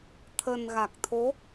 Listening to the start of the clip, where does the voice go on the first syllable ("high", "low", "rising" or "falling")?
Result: low